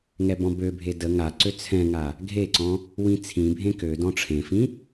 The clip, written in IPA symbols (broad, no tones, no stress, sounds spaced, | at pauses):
ŋ ɛ b ɔ̃ b ø bʱ e d ə ŋ a ǀ ø t͡sʰ ɛ̃ ŋ a | ɡʱ e ǀ ɔ̃ | w ĩ t͡sʰ ĩ bʱ ẽ k ø d ɔ̃ ʈ͡ʂʰ ẽ f ĩ